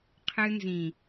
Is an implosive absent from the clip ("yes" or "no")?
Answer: yes